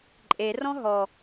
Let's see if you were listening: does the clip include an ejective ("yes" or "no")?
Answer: yes